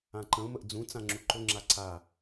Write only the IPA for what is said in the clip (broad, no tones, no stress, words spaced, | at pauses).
ãǃə̃ʊ̯məʔ d͡zũt͡sã ŋ͡ǁuǃʊŋ͡ǁa ǀa